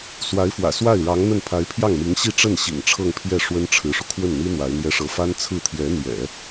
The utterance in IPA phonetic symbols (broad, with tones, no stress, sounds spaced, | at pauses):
s w a˧˥ ɪ̯ f w ä̰˨˩ s w a˥˩ ɪ̯ ɻ ɑ˧˥ ŋ n̪ ə˥˩ n pʰ a˧˥ ɪ̯ pʰ j ɑ˥˩ ŋ m i˧˥ ŋ ɕ i˥˧ ʈ͡ʂ ə˥˩ n ɕ ḭ˨˩ ŋ ʈ͡ʂʰ ɤ˥˧ ŋ pʰ j ɛ˥˩ ʂ w ə˥ n ʈ͡ʂʰ ɻ̩˧˥ ʂ u˧ kʰ w ə˥˩ n n̪ i˥ n̪ w a˧˥ ɪ̯ n̪ j ɛ˥ ʂ ɤ˥ f a˥ n t͡sʰ ɹ̩˥˩ t̪ʰ j ɛ˧˥ n̪ j ɛ̰˨˩˦